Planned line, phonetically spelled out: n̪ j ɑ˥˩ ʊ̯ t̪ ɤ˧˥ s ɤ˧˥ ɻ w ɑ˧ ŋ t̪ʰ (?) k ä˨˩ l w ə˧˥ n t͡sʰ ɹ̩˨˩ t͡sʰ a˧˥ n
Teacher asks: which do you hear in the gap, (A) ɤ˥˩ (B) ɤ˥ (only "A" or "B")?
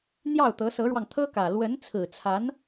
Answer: B